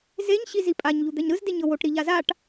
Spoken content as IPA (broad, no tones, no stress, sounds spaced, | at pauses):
z e ɲ ɕ i z i pʼ a ɲ ʎ u d̪ ɛ ɲ ɾ ɯ z d e ɲ ɤ w o ʈ ɾ i ʎ a z a ʈ